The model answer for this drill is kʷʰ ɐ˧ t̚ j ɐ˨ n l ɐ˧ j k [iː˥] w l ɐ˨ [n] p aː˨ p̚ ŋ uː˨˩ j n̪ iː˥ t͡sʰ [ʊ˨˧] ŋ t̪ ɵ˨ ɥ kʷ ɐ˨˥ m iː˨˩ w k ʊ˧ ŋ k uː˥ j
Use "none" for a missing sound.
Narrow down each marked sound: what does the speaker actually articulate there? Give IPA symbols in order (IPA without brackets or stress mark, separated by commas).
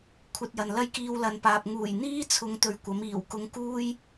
iː˧, n, ʊ˨˧